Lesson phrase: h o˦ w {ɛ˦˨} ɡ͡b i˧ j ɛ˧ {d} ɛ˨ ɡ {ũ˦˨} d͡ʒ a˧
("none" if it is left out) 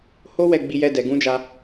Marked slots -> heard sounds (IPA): ɛ˦˨, d, ũ˨˦

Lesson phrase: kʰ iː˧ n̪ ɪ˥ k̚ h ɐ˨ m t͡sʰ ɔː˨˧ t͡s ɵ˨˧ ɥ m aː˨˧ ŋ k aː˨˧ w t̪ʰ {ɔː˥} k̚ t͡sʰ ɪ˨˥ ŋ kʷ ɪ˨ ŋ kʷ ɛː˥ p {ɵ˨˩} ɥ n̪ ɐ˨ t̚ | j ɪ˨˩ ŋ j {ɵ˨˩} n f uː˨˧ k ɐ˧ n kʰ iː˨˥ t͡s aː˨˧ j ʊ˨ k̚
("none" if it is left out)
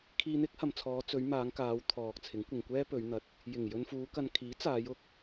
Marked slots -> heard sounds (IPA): ɔː˨, ɵ˨˧, ɵ˧

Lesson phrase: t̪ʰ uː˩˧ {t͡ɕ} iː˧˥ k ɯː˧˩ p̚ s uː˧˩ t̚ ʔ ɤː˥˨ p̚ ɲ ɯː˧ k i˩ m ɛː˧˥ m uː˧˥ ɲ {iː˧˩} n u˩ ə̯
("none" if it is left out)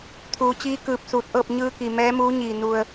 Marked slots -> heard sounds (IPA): t͡ɕ, iː˧˩

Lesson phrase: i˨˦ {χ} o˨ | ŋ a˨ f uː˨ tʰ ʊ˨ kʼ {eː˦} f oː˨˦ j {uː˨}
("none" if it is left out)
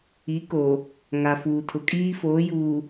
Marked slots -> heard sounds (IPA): k, iː˦, uː˨

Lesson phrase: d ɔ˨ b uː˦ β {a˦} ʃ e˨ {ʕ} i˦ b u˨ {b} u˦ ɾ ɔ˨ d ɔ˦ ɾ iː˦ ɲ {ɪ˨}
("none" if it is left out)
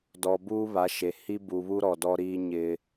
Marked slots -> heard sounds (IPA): a˨˦, h, β, ɪ˦

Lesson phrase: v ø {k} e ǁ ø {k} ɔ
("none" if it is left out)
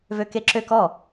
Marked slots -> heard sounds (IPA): k, k

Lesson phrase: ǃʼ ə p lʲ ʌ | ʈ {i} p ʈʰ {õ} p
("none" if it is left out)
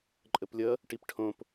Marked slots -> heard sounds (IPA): i, õ

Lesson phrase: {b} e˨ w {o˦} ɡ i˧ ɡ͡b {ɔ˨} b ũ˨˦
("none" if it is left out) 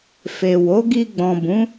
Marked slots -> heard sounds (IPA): f, o˨˦, ɔ̃˨

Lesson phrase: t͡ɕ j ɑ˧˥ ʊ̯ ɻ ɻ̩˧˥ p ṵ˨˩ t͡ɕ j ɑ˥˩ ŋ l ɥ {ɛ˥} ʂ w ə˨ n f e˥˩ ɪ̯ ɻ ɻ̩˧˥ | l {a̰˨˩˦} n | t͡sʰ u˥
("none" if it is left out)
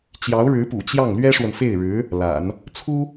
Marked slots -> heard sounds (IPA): ɛ˥, a̰˨˩˦

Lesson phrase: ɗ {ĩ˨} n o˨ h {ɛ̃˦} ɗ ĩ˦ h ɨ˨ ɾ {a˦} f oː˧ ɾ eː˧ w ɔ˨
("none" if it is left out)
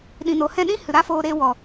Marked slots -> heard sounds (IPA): ĩ˨, ɛ̃˦˨, a˦

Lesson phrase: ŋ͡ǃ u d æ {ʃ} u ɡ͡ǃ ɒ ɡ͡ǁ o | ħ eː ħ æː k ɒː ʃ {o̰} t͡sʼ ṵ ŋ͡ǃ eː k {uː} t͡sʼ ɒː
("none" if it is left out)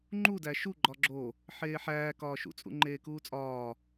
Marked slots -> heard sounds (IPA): ʃ, ṵ, uː

